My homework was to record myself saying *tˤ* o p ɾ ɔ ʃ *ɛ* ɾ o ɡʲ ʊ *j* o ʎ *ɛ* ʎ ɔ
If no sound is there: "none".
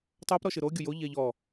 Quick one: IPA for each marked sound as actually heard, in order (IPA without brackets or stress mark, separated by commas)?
tˤ, ɨ, j, ɛ